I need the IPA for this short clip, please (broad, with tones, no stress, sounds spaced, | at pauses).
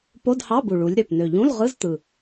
p o˧˥˧ d h ɑ˧˥˧ b u˨˩ ɭ u˩˧ lʲ ɾ ø˨˩ p n ø˨˩ ʎ ũ˧˥˧ l ʁ ɯ˧˥˧ z t̪ ɯ˨˩